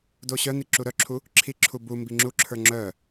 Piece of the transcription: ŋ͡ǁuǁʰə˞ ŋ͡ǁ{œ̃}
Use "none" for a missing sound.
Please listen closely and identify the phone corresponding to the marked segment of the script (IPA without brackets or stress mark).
œ